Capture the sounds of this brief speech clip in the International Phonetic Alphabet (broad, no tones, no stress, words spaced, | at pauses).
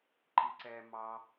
ǃiǀɛ mɑ